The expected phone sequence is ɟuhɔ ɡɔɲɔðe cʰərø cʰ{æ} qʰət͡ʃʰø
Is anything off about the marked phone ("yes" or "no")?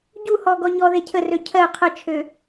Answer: yes